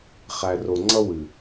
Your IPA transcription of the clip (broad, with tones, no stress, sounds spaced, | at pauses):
χ æ˨ r o˨ ŋ͡ǀ ʌ˦ w ɨ˨